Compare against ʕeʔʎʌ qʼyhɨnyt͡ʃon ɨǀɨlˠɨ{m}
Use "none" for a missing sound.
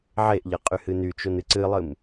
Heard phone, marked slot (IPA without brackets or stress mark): m